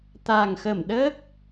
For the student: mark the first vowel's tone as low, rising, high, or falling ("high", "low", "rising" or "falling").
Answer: low